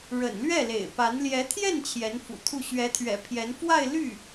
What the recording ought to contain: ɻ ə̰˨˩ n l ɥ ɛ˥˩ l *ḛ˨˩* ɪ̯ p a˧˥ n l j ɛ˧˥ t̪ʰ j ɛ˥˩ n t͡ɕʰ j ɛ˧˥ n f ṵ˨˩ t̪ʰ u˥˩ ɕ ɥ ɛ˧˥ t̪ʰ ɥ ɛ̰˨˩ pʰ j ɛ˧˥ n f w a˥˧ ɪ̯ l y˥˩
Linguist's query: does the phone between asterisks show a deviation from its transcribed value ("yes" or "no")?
no